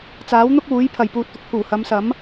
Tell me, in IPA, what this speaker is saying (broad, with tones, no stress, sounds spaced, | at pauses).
t͡s aː˨˥ w n̪ ʊ˥ k̚ uː˨˥ j pʰ ɐ˨ j p uː˧ t̚ t̪ ʊ˨ k̚ pʰ uː˨˩ h ɐ˨˧ m s ɐ˨˥ m